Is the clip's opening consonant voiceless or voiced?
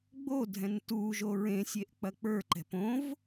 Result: voiced